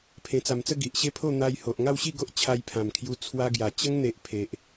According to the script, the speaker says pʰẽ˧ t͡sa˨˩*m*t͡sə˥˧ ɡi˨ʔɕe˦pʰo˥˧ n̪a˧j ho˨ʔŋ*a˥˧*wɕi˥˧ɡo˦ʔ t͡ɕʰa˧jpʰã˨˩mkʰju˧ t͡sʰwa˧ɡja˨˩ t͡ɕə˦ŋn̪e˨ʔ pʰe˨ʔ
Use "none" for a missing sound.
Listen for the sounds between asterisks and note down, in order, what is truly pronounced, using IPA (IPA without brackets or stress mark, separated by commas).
m, a˥˧